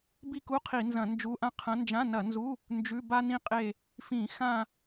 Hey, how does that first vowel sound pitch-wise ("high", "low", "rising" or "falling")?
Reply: falling